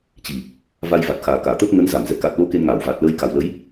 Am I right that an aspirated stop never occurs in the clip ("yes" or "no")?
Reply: yes